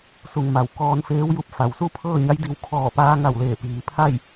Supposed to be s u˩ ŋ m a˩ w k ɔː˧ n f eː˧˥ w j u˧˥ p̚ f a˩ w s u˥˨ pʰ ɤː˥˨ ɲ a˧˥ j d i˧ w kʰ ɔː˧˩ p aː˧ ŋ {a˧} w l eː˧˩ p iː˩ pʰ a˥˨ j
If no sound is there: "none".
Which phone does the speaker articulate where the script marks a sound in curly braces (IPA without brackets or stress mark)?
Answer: a˧˩